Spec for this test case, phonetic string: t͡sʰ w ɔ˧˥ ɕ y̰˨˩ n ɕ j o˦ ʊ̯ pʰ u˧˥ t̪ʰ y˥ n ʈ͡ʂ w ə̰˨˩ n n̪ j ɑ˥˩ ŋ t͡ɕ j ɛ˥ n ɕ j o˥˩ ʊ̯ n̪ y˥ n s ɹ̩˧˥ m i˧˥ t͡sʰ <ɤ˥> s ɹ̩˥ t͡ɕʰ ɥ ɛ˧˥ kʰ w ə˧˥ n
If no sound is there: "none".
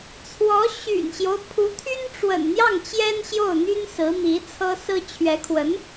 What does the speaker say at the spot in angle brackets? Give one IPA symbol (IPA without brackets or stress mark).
ɤ˥